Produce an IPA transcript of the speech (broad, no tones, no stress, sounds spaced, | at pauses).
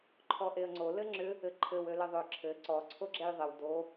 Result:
ǃʰ ɔ ʔ e ə̯ ŋ͡ǀ o l ɘ ŋ͡ǁ ʏ | ɘ ǃʰ ɘ w ø l ɘ ðˤ ø ǁʰ ɘ ǀ ɔ ǀʰ o ɡ͡ǁ e j ðˤ ɘ w d o